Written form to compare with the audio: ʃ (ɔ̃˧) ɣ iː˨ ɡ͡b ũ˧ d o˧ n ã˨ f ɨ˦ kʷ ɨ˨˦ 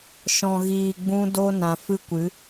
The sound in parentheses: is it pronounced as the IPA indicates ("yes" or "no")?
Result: no